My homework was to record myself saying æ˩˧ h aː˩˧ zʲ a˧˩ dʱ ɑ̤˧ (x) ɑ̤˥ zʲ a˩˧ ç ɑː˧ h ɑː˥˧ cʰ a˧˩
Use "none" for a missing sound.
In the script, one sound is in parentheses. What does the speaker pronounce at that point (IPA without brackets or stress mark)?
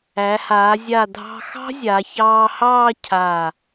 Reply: x